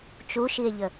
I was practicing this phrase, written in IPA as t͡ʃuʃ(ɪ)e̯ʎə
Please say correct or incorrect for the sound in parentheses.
incorrect